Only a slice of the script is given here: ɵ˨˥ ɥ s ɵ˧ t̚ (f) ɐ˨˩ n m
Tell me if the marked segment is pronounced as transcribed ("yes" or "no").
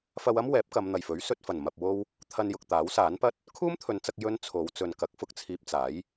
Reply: yes